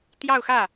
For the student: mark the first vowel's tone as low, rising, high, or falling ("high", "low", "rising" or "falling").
falling